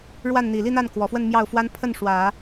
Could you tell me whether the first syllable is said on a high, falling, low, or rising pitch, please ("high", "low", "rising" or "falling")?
falling